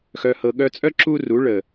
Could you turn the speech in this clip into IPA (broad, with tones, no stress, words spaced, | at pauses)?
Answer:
xœ˨hɤ˨ ɠœ˧t͡sʼœ˦ ǁu˦ru˨˦ ɭə˨